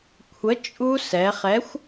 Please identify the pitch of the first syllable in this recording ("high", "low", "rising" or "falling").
rising